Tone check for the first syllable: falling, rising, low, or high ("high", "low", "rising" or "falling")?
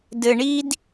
low